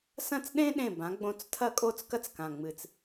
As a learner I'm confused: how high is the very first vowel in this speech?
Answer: low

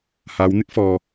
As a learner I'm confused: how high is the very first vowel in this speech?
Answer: low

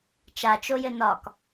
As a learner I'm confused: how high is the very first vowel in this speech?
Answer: low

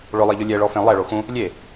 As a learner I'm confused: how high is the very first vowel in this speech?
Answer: high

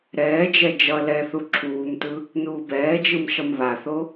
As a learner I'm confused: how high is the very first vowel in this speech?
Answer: mid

